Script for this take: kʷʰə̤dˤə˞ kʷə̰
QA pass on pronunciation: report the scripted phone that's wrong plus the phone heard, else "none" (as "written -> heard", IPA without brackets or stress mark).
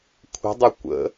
none